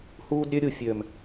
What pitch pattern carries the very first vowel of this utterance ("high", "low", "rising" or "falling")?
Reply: high